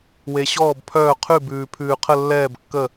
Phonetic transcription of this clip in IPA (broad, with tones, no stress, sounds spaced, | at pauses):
w e˩ ɕ ɔː˧˩ b pʰ œː˧˩ qʰ ʉ˧˩ b ʉː˩ pʰ ʉː˩ qʰ ə˧˩ lː ɛː˧˩ b kː ə˧˩